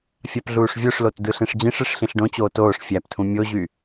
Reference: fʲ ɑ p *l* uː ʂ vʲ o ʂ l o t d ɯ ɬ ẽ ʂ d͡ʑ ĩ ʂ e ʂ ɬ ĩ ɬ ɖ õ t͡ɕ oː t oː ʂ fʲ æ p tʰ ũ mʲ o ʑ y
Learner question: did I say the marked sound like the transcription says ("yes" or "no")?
no